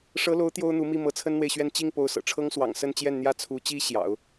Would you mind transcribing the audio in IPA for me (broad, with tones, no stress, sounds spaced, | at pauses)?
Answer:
ʂ ɤ˧˥ l o˧˥ ʊ̯ t̪ j o˥ ʊ̯ n̪ u˧˥ m i˥˩ m ɤ˧˥ t͡sʰ ə˥ n n̪ w e˨ ɪ̯ ɕ ɥ ɛ˥˧ n t͡ɕ i˥˩ ŋ p o˧˥ ʊ̯ s ɤ̰˨˩ ʈ͡ʂʰ ɤ˥ ŋ s w ɑ̰˨˩ ŋ s ə˥˧ n t͡ɕ j ɛ˥˩ n n̪ j ä˥ t͡sʰ u˧˥ t͡ɕ i˥ ɕ j ɑ̰˨˩˦ ʊ̯